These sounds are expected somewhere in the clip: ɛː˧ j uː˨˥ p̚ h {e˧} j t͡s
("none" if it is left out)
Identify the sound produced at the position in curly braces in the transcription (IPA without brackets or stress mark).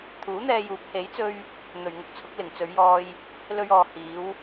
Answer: e˨˥